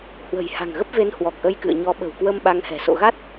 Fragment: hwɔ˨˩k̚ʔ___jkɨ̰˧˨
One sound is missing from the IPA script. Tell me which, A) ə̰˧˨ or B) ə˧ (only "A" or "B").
B